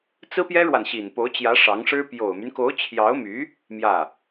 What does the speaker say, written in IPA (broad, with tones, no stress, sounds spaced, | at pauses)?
t͡s ɹ̩˥ p j ɛ˥ ɻ w a˨ n ɕ i˨˩ n p o˧˥ ʊ̯ t͡ɕ j ä˧˥ ʂ ɑ˧˥ ŋ ʂ ɻ̩˥ p j o˨˩ ʊ̯ m y˦ n k o˧˥ ʊ̯ t͡ɕʰ j ɑ˧˥ ʊ̯ m y˧˥ | m j ä˥˩